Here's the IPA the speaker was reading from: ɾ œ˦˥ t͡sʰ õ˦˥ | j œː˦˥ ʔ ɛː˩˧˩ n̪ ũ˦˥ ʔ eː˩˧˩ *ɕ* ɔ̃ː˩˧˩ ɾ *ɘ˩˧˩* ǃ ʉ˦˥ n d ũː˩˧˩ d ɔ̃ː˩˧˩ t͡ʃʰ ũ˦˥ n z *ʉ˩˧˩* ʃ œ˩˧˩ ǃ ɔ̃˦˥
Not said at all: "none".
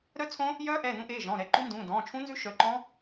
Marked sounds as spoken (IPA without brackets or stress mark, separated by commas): ʒ, ɛ˩˧˩, ʉ˦˥